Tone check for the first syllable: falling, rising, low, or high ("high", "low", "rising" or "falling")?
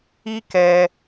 high